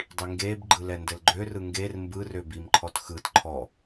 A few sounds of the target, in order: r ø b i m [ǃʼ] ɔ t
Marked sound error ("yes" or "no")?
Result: yes